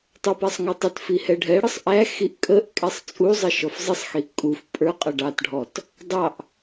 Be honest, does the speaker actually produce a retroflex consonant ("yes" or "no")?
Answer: yes